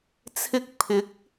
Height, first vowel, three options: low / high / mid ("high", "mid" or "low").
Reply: high